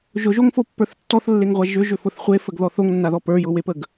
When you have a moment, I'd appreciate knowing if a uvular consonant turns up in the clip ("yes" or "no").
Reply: yes